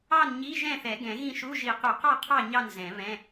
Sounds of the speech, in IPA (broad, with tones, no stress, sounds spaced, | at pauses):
ɑ˥˨ n ɲ i˧˥˧ ʒ ɛ̃˥˨ θ ɛ˨˩˦ ɡ ɛ̃˨˩˦ ɣ ĩ˥˨ ʃ u˧˥˧ ʒ i˨˩˦ q u˨˩˦ q ɑ˥˨ qʰ ɑ˥˨ ɲ ɑ˥˨ n z ɛ̃˨˩˦ β ɛ̃˧˥˧